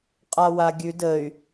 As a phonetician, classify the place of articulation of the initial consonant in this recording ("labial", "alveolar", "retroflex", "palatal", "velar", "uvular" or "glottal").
uvular